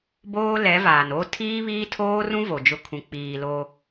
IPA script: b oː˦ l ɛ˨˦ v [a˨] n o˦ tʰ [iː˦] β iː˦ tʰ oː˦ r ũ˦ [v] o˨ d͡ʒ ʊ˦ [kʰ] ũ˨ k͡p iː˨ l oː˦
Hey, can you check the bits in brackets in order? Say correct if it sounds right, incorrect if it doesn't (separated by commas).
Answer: incorrect, correct, correct, correct